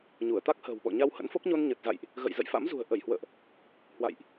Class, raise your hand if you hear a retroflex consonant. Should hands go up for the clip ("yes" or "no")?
no